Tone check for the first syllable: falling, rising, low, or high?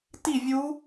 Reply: falling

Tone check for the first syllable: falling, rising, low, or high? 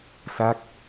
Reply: falling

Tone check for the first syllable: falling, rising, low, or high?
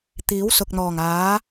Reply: rising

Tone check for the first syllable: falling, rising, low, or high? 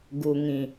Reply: low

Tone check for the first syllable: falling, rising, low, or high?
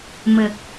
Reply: low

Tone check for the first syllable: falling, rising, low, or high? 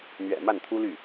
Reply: low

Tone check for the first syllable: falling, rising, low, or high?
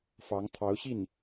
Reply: rising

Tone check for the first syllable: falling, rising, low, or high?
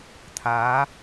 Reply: rising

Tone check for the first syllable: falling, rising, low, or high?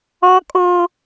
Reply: high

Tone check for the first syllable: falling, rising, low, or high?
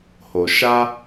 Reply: low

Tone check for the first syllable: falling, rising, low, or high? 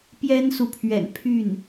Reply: high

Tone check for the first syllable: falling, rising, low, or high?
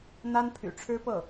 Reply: high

